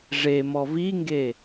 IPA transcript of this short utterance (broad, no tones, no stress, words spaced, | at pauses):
ʐe mɔviŋɡe